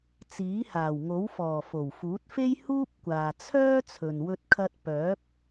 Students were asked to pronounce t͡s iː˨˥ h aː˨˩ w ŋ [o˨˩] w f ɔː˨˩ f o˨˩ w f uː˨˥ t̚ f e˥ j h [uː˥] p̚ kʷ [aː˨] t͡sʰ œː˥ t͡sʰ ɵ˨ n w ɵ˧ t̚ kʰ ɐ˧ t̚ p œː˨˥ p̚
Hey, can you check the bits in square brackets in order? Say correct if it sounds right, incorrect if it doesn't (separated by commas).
incorrect, correct, correct